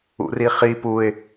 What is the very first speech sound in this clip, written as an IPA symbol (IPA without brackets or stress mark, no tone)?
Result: ṵ